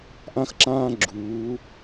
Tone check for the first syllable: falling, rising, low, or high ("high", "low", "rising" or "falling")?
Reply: high